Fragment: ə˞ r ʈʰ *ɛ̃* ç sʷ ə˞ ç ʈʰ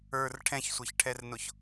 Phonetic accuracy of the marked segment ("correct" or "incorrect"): correct